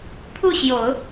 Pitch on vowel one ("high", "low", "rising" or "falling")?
falling